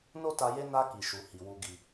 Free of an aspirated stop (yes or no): yes